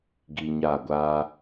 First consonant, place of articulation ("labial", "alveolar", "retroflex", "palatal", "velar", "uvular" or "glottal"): velar